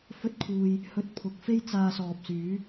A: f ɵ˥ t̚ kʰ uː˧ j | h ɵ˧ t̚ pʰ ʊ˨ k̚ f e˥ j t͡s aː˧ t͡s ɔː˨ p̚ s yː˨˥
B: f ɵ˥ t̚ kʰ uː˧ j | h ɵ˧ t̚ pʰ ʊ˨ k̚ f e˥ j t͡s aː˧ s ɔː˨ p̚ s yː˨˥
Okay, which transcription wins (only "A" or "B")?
B